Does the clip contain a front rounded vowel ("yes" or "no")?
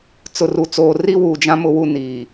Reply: no